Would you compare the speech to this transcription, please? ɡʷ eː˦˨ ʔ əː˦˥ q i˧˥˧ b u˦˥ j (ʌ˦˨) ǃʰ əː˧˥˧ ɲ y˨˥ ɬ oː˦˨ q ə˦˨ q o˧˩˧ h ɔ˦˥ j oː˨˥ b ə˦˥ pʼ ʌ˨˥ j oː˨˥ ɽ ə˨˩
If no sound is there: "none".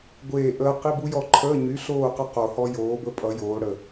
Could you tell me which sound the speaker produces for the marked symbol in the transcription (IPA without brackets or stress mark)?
ɔ˦˨